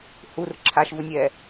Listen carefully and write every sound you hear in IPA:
h u r ǁʰ a ʃ v u nʲ ɛː

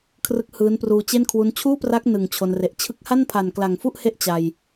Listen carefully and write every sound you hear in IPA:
kʰ r ɯ˦˥ k̚ h ɯː˦˥ n p r uː˧ t͡ɕ e˥˩ n kʰ w u˦˥ n t͡ɕʰ uː˥˩ p r a˦˥ k̚ n ɯ˨˩ ŋ t͡ɕʰ o˧ n r e˨˩ ʔ t͡ɕʰ ɯ˦˥ k̚ h a˥˩ n pʰ a˨˩ n k l a˨˩ ŋ f u˥˩ ʔ h e˦˥ ʔ t͡ɕ a˧ j

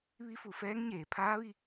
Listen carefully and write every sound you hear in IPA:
ʋ i˧˥ f u˩˧ f ɛː˧˥ ŋ ɲ eː˩˧ pʰ aː˧˥ ʋ i˧

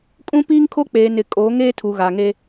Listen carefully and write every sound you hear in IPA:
kʼ ũ˦ p iː˦ ŋ kʰ o˦ k͡p eː˨ n ɪ˨ kʼ oː˨˦ ŋ eː˦ tʰ u˨ ɣ a˨ ŋ e˦

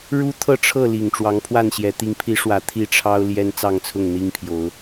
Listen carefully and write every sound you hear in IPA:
ɻ u˦ t̪ʰ ɤ˥˨ ʈ͡ʂʰ ɤ˥˨ l i˨˩ ŋ ʈ͡ʂ w ɑ˨˦ ŋ pʰ w a˥˨ n ɕ j ɛ˨˦ t̪ i˨˦ ŋ pʰ i˨˦ ʂ w ä˨˩ t̪ʰ i˥˨ ʈ͡ʂʰ ɑ˦ ʊ̯ l j ɛ˦ n t͡s ɑ˥˨ ŋ t͡sʰ ʊ˥˨ ŋ n̪ i˦ ŋ pʰ j o˨˦ ʊ̯

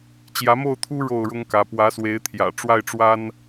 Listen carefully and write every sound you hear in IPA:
t͡ɕ j ä˨˦ m o˥˨ ʊ̯ t̪ʰ u˦ ɻ o˥˨ ʊ̯ ɻ ʊ˦ ŋ k ä˨˦ p w ä˨˦ s w e˨˦ ɪ̯ t̪ʰ j ä̰˨˩ ʈ͡ʂ w a˥˨ ɪ̯ ʈ͡ʂ w a˦ n

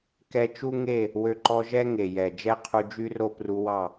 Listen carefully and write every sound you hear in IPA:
k ɛ˧ t͡ʃ u˦ ŋ e˦˨ | w ø˧ ǃ ɔ˧ ʒ ɛ˦ ŋ e˨ j ɛ˨ d͡ʒ ɛ˦ qʰ u˧ d͡ʒ y˦ r o˦ p r u˧ w ɑ˦˨

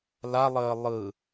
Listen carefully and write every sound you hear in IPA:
l a lˠ əː lˠ ɯ

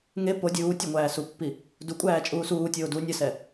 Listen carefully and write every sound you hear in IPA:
ŋ e p o dʲ uː tʲ ɛ ŋʷ æː s u pː i | d u kʷʼ æː t͡ʃʼ uː s uː tʲ oː d u nʲ ə s ɛ

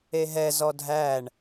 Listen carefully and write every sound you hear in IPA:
e ɦ ɛ z ɔ dʱ æ ɳ

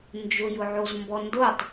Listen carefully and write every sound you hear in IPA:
n d͡ʒ ʊ j ʊ ʕ o z m b ɔ n d o tˤ

